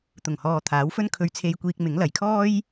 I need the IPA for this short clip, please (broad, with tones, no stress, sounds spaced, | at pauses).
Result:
t̪ ʊ˨˩ ŋ h ɔː˨ t̪ʰ aː˨˥ w f ɵ˥ n kʰ ɵ˧ ɥ t͡sʰ e˧ j kʷ iː˧ k̚ m ɪ˨˥ ŋ l ɐ˨ j kʰ ɔː˥ j